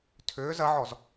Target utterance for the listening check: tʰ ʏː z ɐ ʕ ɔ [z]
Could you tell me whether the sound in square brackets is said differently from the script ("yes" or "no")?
no